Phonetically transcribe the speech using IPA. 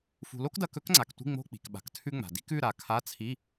fṳ˨lo˥kdɐ˧˥˧k ɵ˥kŋ͡ǀa˨ktʷi̤˧˥˧ ŋ͡mo̤˧˥˧ k͡pi̤˨kɓa̤˨ktʰʉ˥ŋ͡ma̤˨ di̤˥kʉ˧˥˧ɾa˨ kʰa˧˥˧t͡sʰi˧˥˧

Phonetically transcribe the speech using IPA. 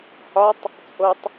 hɒtˤ | t͡sʼotˤ

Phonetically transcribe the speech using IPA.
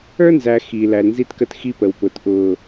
ə˞˦nzæ˨ xi˨ læ˨lnzi˦tkə˦t xi˦pə˨wpʊː˨t ʔʊː˨

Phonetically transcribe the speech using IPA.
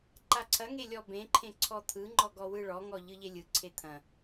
ǃaǀʰɐŋe lʲɔbẽǃʰẽ ǀʰɔt̪ʰɯŋ͡ǃɔ ɡɔwɯɭɔŋɔ ʎɯʎelʲɯǀʰe t̪ʰɐ̃

